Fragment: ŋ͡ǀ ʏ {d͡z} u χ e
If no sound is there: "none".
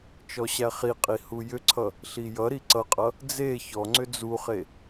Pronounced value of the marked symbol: d͡z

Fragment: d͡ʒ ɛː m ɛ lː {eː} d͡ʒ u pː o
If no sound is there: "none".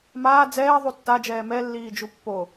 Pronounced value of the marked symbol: iː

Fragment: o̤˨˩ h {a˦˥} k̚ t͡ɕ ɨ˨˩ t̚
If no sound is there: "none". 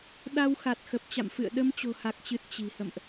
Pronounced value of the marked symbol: a˨˩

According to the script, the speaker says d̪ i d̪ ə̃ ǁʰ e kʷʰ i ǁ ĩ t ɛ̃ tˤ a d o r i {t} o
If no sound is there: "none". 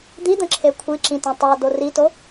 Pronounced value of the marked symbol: t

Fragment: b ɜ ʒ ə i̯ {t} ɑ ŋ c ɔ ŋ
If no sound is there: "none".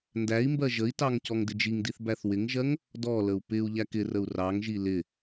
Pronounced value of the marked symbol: t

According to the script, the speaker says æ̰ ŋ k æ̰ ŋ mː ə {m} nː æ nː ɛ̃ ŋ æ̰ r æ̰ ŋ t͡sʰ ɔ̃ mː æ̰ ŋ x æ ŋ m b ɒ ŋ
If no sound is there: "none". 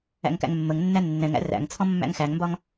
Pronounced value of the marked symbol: ŋ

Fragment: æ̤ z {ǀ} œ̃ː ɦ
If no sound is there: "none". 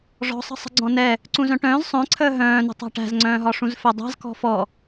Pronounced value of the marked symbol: ŋ͡ǀ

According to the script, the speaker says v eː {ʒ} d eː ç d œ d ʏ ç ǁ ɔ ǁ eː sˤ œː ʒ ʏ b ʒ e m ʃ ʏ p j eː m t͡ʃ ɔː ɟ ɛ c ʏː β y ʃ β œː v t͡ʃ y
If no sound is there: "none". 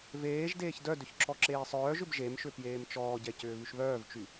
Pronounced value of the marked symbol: ʒ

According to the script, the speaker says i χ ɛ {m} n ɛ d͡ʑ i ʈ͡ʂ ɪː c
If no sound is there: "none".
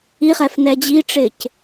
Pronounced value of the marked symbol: f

